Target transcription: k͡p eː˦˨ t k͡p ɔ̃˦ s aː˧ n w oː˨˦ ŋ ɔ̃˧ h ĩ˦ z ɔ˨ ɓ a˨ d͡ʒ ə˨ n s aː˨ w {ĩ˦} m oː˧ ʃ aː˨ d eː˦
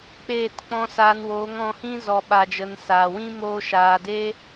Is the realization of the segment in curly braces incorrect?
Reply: no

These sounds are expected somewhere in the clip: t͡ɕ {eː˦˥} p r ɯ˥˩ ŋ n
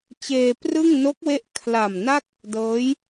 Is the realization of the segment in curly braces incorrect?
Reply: yes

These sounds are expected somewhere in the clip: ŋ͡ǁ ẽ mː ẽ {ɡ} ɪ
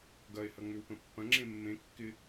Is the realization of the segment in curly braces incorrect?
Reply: yes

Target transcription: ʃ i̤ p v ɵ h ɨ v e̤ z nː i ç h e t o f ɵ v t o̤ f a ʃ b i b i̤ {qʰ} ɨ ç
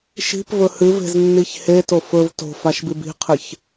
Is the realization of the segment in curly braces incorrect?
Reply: no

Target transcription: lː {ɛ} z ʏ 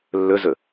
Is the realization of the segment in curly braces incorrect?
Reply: yes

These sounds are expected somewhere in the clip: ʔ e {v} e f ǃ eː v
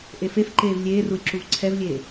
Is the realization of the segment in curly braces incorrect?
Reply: yes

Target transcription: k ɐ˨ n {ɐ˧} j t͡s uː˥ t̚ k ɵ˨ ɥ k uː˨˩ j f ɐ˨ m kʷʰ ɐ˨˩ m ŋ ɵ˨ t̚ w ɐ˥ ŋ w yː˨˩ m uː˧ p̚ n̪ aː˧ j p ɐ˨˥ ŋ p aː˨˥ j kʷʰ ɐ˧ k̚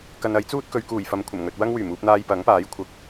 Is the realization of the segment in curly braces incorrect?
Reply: yes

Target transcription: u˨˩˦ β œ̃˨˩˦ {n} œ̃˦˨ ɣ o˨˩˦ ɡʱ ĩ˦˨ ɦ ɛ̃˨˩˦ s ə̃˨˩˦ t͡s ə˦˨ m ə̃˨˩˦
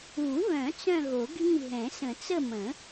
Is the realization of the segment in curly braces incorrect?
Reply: yes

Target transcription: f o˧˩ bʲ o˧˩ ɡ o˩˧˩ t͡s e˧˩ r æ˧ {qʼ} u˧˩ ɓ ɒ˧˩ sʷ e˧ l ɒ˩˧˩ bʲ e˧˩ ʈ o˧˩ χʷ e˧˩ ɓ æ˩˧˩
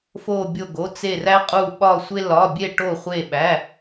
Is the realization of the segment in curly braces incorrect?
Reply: no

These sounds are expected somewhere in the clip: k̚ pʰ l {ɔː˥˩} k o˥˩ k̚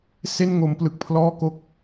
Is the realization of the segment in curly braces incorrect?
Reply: no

